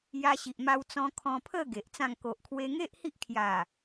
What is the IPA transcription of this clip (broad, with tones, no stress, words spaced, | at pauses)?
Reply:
ja˧ɕi˨ʔma˧w t͡sɔ̃˧ kʰɔ̃˧pʰə˥˧ ɡe˨ʔt͡sã˥˧ŋ ko˨ʔkʰwe˧ŋe˦ʔ hi˦ʔkʰja˨˩